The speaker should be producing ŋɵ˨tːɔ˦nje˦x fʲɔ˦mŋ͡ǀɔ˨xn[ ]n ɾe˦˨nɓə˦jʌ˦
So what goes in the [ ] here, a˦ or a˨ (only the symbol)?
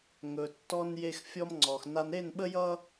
a˦